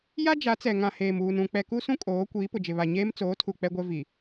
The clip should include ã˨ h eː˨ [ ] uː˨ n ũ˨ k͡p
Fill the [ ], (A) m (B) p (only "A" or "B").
A